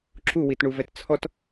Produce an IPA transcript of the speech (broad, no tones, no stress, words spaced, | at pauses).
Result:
ǁu witɳuvɛtt͡sʰɔt